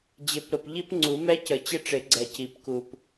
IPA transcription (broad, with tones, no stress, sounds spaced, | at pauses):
d͡ʑ ɪ˨˩˦ p ɾ ʊ˨ p ʎ i˥ p ŋ͡ǀ u˨˩˦ m ɛ˥ c ə˨˩˦ t͡ɕ ɪ˥ ʈ͡ʂ ɪ˨˩˦ ɡ͡ǀ ɛ˨ c i˨˩˦ p k u˨ p